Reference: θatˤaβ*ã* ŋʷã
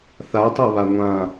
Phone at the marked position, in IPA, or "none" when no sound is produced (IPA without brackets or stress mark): a